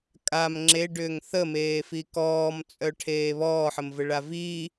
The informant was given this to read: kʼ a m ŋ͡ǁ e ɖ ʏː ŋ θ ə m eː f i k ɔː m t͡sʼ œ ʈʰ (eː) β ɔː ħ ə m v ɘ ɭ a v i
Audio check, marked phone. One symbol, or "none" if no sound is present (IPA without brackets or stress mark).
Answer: eː